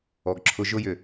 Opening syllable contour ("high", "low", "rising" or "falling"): low